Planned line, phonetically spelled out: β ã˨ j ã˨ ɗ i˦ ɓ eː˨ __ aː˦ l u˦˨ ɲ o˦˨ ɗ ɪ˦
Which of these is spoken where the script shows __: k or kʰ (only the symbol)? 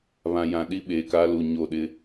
k